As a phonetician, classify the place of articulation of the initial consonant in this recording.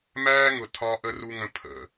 labial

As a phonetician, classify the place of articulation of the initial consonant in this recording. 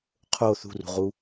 uvular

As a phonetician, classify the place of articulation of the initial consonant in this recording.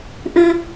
glottal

